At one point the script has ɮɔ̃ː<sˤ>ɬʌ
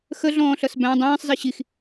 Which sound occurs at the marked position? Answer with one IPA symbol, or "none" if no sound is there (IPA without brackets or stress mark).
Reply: none